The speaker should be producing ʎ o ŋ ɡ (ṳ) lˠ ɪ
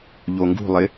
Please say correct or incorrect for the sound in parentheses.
correct